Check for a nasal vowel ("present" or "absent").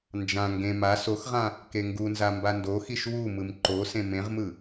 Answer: present